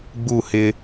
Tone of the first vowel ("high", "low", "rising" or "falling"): falling